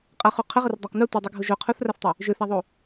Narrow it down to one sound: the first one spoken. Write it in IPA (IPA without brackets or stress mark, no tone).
qʼ